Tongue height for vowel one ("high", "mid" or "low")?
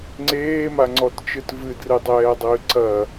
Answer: mid